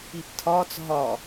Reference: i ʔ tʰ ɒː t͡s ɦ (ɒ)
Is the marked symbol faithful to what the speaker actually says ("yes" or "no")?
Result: yes